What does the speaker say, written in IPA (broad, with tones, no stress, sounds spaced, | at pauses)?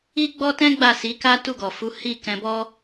i˦ ɡ͡b ɔ˦ t ɛ̃˦ ɡ͡b a˦˨ s i˨˦ k a˦ t u˦˨ ɡ ɔ˨ f u˨˦ h i˦˨ k ɛ̃˧ b ɔ˦